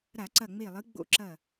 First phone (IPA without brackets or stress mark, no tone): ɾ